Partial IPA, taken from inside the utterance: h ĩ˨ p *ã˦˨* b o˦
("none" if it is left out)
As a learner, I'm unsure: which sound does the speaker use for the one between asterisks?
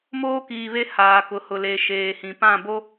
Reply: ã˦˨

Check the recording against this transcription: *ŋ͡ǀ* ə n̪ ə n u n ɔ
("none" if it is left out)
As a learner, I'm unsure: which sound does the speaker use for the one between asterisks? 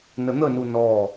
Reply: n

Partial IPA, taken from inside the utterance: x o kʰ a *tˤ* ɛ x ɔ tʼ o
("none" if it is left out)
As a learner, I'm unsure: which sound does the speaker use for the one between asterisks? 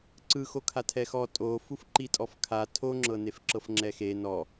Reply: tʰ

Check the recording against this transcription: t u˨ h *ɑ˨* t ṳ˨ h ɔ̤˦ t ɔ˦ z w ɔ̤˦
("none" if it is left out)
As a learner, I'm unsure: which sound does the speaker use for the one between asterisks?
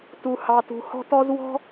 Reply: ɑ˨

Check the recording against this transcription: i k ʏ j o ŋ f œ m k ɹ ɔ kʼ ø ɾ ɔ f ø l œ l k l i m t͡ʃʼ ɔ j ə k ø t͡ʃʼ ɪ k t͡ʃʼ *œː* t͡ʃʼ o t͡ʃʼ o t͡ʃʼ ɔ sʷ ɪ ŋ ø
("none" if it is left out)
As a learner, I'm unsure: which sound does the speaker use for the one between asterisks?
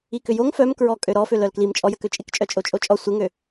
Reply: œ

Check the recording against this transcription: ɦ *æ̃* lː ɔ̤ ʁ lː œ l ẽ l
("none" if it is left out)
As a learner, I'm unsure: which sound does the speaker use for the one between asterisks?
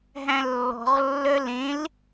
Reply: æ̃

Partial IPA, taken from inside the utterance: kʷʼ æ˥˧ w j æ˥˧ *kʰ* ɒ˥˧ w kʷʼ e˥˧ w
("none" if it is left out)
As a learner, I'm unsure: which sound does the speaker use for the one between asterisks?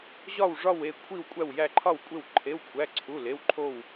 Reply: ǃʰ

